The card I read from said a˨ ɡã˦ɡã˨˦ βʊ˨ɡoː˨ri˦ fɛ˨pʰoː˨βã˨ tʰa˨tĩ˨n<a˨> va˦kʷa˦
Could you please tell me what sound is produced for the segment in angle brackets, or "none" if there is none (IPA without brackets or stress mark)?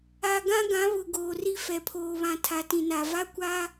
a˨